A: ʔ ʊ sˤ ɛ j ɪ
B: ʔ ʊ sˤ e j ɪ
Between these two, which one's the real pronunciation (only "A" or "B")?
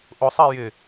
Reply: A